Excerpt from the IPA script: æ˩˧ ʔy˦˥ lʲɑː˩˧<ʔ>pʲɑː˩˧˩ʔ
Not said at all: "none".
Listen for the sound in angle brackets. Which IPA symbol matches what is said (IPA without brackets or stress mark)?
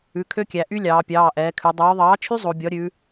none